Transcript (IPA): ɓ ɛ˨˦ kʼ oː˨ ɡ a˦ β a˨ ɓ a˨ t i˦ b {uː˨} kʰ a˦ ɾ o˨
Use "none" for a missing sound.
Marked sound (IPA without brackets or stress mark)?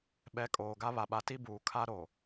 uː˨